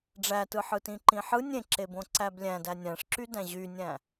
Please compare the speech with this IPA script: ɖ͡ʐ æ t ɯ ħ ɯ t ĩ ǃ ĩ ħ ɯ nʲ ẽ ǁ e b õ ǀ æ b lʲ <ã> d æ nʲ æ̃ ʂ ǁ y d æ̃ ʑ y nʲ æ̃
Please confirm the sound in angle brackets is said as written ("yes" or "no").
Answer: no